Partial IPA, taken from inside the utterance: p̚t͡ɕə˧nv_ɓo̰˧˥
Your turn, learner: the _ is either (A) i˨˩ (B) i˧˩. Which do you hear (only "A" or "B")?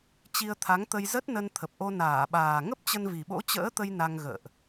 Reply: A